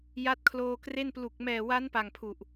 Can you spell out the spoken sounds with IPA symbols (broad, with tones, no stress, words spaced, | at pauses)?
ja˦˥t̚kʰloː˧kre˥˩n plu˨˩k̚ mɛː˨˩wa˦˥n pa˨˩ŋpʰu˨˩ʔ